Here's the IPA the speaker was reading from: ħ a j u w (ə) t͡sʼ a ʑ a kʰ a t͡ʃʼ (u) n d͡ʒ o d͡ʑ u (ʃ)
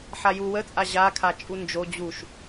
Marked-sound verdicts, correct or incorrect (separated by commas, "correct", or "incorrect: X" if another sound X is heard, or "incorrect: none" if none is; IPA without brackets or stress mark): correct, correct, correct